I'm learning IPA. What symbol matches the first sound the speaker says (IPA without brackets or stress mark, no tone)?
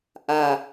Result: ʔ